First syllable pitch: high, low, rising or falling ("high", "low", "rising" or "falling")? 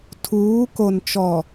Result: rising